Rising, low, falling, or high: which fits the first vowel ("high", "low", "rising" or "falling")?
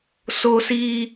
high